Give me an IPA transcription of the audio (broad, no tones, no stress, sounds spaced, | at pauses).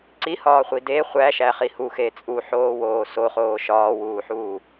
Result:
ǀ i h ɒː χʷ i d e χʷ æ ʃ æ χ i h u x e t͡sʼ u ħ oː w oː s o χ oː ʃ ɒː w uː ħ uː